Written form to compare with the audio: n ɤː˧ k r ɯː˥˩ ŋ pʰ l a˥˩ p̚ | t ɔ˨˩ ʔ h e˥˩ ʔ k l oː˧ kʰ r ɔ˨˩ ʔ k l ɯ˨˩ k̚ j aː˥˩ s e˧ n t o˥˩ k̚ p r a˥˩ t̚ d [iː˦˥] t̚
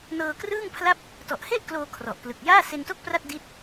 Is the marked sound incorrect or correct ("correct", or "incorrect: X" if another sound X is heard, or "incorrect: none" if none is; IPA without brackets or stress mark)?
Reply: incorrect: i˦˥